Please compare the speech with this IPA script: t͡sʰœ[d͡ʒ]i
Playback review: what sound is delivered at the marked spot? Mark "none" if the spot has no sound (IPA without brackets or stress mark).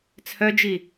d͡ʒ